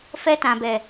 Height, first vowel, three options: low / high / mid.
mid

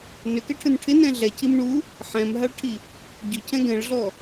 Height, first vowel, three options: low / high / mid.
high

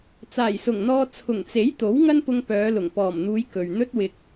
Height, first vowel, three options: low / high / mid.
low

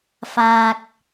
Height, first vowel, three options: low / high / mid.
low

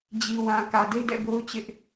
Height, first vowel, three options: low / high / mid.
high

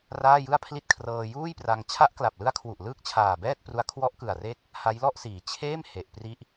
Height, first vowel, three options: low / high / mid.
low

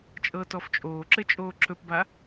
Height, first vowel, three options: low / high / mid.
mid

